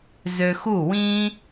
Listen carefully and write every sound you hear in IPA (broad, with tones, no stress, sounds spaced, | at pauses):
z ø˧ x u˥˩ w ĩ˥